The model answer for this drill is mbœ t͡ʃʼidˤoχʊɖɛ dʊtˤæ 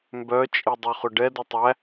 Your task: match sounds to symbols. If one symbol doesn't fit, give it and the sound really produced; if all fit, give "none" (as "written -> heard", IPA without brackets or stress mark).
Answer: none